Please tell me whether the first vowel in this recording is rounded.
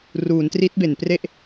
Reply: yes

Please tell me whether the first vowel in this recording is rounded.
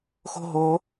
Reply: yes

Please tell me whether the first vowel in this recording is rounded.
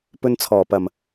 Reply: yes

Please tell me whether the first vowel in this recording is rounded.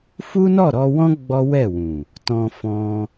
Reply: yes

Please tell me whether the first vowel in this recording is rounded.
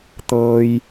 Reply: no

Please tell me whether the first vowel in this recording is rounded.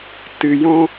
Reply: no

